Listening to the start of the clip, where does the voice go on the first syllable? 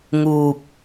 low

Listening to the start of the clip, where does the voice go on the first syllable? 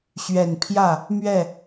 low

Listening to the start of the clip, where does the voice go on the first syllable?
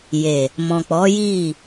low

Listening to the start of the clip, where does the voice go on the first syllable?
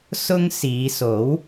high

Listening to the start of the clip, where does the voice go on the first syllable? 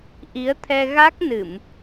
rising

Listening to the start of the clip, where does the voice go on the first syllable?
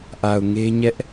low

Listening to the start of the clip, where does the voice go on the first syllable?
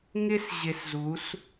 high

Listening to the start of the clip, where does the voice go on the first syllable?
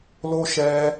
high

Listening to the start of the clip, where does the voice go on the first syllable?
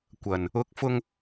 low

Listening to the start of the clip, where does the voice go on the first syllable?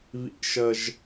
high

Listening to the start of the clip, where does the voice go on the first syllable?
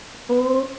high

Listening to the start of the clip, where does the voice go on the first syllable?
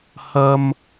high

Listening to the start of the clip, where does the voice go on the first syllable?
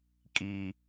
high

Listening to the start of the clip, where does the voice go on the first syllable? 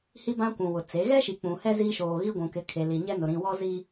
high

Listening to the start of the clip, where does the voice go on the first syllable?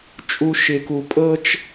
low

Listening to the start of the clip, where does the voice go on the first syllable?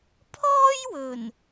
high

